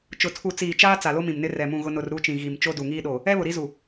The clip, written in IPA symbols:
t͡ʃ ʊ˨ tʰ u˨ t͡s iː˨ t͡ʃ aː˦ t͡s a˨ l o˦ m ĩ˨ m n ɪ˦ r ɛ˨ m ũ˦˨ ɣ ʊ˦ n ʊ˨ r ɾ uː˦ t͡ʃ ĩ˨ ɣ i˨ m t͡ʃ o˦ d u˨ ŋ iː˦ ɗ oː˨ | ɛ˦ β ʊ˨ ɾ i˦ z u˨

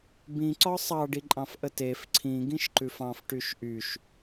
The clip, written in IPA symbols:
b ĩ ǀ ɒ sˤ ɑ ɖ i ǃʼ ɑ̃ f ʔ ə t e f ǀʰ ĩ ɡ ĩ ʃ ǃ ʉ f ɑ̃ f ʈ y ʃ ʔ y ʃ

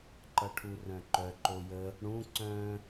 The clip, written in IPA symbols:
ǃ ʌ ʈʰ u r œ̃ ǃ œ ǃ o j ə | ɽ ũ ǀ œ̃

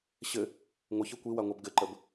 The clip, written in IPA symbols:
ɕ ɘ | ŋʷ ɘ ç ɘ kʷ i w a ŋʷ a b ɡ ɘ ǃ ə b

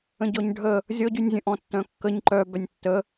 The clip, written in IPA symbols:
ə̃ ɟ ɔ ɲ ɖʱ ə | zʲ ɔ ɟ y nʲ zʲ ə̃ ʔ ɔ̃ tː œ̃ kː ə ɲ ǃ œ b œ nʲ tː ə

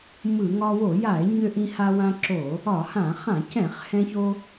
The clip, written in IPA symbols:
m ɯ˧˩˧ ŋ ɒ˧ w o˧˩˧ j a˧˩˧ e̯ ɲ ø˧ ʔ ĩ˧ h a˧ w ã˧ ǁ o˧˩˧ | ɒ˧˩˧ h ã˧˩˧ χ ã˧˩˧ c ɛ̃˧˩˧ χ h ɛ̃˧ ç o˧

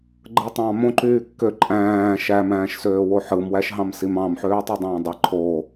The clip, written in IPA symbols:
ɡ͡ǃ ɯ tˤ ɑ̃ m õ ǃ yː kː ø ǃʼ æ̃ː ʃ æ m æ̃ː ʃ s øː w o ħ ɯ m w æ ʃ ɦ ɑ̃ m s i m ɑ̃ m ħ øː tˤ ɯ dˤ æ̃ː dˤ i ǃʰ o

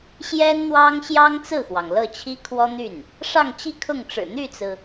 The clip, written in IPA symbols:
ɕ j ɛ˥ n n̪ w ɑ˥ ŋ ɕ j ɑ˥ ŋ t͡s ɹ̩˥˩ x w ɑ˩ ŋ l ɤ˥˩ t͡ɕʰ i˥ kʰ w ɔ˥ n̪ y˥˩ n | ʂ ɑ˥˧ ŋ t͡ɕ i˥˧ kʰ ʊ˥˩ ŋ ʈ͡ʂ ɻ̩˨˩ n̪ y˥˩ t͡s ɹ̩˩

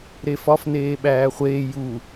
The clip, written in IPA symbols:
ɾ e f ɒ f n eː ɓ æː χʷ eː j u

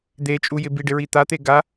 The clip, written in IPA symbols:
d̪ e t͡ʃʼ u j ɪ b i ɖ ɪ ɹ i t̪ a t̪ e ɡ a

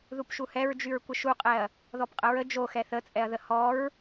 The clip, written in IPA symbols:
ð u p ʃ u h ɛ ɹ d͡ʒ y ɹ kʷ ə ʃ u qʼ ɛ ɐ̯ | ð ɔ p qʼ ə ɹ ə d͡ʒ o x ɛ θ ə t͡sʼ ɛ ɐ̯ ð ə h ɔ ɹ

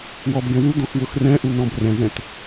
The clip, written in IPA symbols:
w ɔ b ɡ ɛ̃ w u d̪ ɔ̃ x w ʊ x r ɛ̃ ʔ u n ɔ̃ b r ɛ̃ z ɛ̃ t

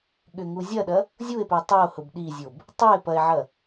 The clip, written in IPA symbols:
ɠ ʏ ŋ u zʲ ɐ ɗ ɐ | zʲ u e̯ p ʏ o̯ tˤ u o̯ h ʊ b ɗ i zʲ o b | tˤ o e̯ p ɐ e̯ ʕ ɐ

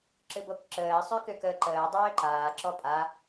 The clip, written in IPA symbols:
ǁ ɨ b o k ǁ əː sˤ ø k ʏ k əː ǃ əː dˤ øː ǃ aː ǁ ɔ pʼ a

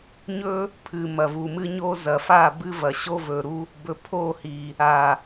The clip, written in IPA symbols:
ɲ ɵ˦ | pʰ ɨ˨ m ɐ˨ v u˨ m ɨ˦ ɲ o˦ z ɐ˨ f a˦˨ b ɨ˦ v ɐ˨ ɕ o˦ v ɵ˨ ɾ u˦ | b ɵ˨ pʰ o˦˨ h i˨ | a˨

